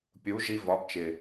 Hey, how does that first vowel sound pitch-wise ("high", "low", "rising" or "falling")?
rising